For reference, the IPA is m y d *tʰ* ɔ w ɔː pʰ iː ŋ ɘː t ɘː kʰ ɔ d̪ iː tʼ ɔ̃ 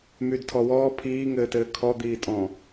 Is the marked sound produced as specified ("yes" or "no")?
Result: yes